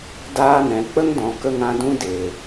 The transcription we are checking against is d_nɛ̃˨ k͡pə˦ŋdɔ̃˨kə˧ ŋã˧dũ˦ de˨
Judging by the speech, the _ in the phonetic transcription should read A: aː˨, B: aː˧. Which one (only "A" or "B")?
B